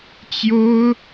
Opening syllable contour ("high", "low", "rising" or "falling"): high